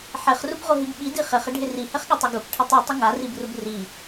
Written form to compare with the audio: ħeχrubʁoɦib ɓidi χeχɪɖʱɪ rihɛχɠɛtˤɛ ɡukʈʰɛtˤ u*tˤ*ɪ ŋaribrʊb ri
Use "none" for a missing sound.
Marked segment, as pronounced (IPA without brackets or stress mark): tˤ